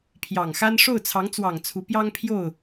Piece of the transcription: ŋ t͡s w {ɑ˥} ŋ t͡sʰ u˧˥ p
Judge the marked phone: incorrect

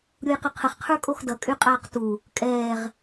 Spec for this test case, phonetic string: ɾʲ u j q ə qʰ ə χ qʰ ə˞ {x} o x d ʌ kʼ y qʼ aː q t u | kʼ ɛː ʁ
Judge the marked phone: incorrect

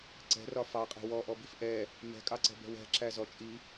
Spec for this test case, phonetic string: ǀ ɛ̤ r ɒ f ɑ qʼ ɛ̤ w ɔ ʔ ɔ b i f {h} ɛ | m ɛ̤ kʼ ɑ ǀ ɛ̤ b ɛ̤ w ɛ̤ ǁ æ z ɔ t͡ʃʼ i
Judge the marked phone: incorrect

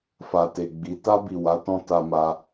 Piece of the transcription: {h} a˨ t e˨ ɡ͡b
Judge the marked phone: incorrect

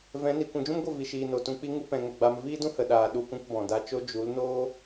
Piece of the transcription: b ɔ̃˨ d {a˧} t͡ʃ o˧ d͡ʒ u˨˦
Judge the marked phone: correct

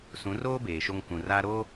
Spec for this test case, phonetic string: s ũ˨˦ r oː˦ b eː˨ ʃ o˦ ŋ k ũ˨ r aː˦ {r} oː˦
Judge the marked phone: incorrect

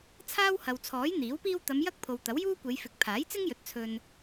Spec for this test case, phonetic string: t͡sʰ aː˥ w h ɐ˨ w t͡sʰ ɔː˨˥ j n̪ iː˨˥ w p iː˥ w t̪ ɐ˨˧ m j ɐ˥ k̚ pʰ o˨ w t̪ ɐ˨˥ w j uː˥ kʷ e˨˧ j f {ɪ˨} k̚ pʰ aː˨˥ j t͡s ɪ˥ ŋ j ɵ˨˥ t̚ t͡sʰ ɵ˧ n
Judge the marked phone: correct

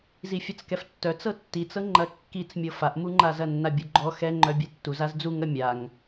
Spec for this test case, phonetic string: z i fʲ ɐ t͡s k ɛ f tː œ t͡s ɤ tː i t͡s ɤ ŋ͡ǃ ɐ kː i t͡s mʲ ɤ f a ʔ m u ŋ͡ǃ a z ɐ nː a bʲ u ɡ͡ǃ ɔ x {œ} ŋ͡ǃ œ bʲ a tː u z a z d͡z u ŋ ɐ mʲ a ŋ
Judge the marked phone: incorrect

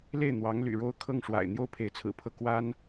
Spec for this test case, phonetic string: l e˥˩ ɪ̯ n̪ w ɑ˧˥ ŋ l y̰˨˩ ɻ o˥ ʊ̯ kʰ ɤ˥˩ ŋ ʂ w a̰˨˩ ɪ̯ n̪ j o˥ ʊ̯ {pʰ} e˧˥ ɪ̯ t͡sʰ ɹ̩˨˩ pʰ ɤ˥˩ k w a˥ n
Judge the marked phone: correct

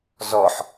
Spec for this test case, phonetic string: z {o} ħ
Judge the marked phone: incorrect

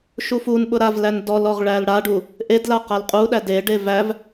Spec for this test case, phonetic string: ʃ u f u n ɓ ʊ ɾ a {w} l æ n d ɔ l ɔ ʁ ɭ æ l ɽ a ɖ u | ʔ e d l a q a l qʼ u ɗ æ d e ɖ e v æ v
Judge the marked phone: incorrect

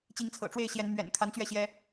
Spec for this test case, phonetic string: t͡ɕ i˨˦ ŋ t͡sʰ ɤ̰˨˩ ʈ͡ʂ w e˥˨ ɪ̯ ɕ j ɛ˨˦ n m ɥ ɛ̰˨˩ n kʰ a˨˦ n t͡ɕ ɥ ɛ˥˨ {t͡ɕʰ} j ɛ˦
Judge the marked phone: incorrect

